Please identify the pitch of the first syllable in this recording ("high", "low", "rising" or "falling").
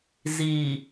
low